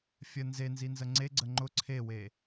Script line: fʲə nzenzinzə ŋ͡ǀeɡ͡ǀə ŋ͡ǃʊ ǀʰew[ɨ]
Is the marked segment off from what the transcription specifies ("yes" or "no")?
yes